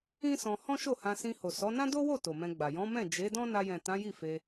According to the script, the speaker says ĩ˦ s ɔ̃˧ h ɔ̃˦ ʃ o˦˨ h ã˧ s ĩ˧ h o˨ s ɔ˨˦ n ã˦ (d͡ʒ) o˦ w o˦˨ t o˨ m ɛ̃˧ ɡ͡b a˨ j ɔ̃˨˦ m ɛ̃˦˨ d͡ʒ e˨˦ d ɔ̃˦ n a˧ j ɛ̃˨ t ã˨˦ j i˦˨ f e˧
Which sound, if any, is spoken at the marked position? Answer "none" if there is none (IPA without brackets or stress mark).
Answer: d